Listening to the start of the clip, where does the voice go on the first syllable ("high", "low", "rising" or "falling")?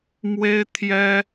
high